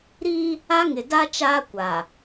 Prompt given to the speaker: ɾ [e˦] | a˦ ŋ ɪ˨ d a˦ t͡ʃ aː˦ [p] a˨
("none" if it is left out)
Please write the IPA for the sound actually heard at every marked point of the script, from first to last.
i˦, kʷ

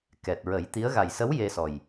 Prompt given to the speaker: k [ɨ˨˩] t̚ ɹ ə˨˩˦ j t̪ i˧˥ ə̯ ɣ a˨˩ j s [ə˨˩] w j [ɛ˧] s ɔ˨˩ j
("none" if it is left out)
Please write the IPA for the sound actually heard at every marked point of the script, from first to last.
ɛ˨˩, ə˧˥, e˧

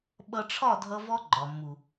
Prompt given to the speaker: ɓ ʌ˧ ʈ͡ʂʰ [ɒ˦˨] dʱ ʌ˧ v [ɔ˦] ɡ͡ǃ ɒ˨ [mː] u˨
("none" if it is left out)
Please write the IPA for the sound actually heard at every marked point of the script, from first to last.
ɒ˦˨, ɔ˦, mː

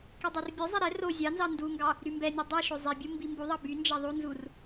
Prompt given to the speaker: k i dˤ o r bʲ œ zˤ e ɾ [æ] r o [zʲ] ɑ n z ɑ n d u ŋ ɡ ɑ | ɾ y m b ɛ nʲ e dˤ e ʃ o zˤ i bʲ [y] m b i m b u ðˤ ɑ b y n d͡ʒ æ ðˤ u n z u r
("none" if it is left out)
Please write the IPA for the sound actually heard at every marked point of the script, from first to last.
ɛ, zʲ, u

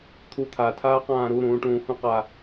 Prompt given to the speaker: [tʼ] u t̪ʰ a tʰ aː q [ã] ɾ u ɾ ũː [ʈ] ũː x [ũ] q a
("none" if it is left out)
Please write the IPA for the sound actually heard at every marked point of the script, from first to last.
t̪ʰ, ãː, ʈ, ũ

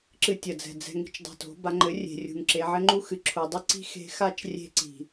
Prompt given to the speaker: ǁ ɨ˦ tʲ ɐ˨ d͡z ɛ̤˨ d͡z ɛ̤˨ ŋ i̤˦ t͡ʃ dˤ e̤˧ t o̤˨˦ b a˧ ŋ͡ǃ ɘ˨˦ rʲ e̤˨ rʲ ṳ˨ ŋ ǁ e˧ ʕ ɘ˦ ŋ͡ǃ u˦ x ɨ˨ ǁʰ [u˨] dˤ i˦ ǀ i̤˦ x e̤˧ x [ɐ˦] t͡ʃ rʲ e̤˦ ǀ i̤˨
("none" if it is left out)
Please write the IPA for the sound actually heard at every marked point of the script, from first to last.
u˨, a˦

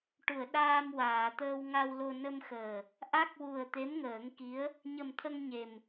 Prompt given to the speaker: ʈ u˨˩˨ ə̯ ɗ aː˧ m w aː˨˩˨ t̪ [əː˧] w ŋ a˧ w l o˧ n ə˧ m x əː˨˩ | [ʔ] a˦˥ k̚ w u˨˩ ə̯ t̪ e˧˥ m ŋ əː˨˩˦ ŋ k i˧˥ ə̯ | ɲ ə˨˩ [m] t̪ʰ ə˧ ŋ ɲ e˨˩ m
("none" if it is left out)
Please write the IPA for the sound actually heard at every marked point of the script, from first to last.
əː˧, ʔ, m

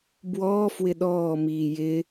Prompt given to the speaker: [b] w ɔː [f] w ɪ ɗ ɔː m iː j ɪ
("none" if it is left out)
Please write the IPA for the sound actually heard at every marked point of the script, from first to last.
b, f

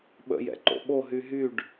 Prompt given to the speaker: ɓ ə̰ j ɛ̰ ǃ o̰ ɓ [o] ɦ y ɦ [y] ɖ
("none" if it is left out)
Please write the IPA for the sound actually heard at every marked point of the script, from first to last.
o, y

